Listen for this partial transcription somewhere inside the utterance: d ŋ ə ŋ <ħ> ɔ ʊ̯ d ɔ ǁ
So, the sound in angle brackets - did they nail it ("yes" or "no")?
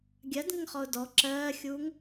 no